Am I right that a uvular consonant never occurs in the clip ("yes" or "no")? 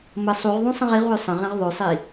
no